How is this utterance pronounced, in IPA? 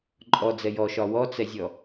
ǃʼ ɔ d͡z ɛ j ɔ ʃ ɒ w ɔ t͡s ɛ zʲ ɔ

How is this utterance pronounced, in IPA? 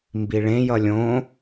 m b i ɭ ẽ j ʌ lʲ õ

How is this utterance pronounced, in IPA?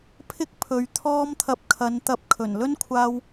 pʰ ɪ˥ k̚ pʰ ɵ˨ ɥ t̪ʰ ɔː˥ m t̪ʰ ɐ˧ p̚ kʰ ɐ˨˧ n t̪ ɐ˧ p̚ kʰ ɵ˨˩ n l ɵ˥ n kʷʰ aː˧ w

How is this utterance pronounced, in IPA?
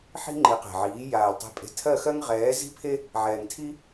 ħ i̤˦ ŋ͡ǃ i˨˦ q e̤˨ ʕ iː˨˦ j aː˨ l tˤ e̤˧ pʼ e̤˧ tʰ ɜ˦˨ x ɜ˦ ŋ ʁ ɛː˨˦ z i̤˦ pʰ e˦ | ʕ ɛː˨ ŋ tʰ i˦

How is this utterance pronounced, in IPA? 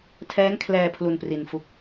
tʰ ɛː˦˥ ŋ kʰ l ɛː˧ pʰ l u˧ n p r i˧ n f u˦˥ k̚

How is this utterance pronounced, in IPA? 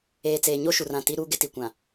eː˨ t͡s eː˨ ɲ o˦ ʃ u˨ r ã˨ t i˦ ɾ uː˦ ɡ ɪ˦ t i˨ kʷ ã˨

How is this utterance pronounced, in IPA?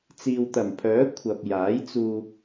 t͡s iː˨ w t̪ ɐ˨˩ m pʰ œː˨˥ kʷʰ ɐ˨ p̚ j aː˨˥ j t͡s uː˨

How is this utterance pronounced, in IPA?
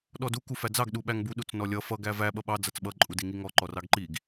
ɗ ɔ d u k u f æ d͡z ɑ ɡ ɗ u ɓ æ ŋ b u ɗ u t͡s n ɔ lʲ ʌ f ʌ ɡ æ v æ ɓ ʌ ɓ ɑ d͡z ʌ t͡s ɓ ʌ ǃʼ u d i ŋ i ŋ ɔ ǃ ɔ r ɑ ɡ ǃ i ɡ

